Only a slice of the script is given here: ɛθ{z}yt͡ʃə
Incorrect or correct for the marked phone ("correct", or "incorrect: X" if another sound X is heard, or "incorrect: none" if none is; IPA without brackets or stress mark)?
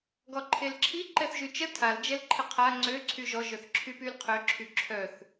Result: incorrect: ʒ